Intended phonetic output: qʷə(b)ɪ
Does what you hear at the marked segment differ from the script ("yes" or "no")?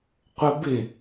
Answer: no